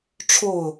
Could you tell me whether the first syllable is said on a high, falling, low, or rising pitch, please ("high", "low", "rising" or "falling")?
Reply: falling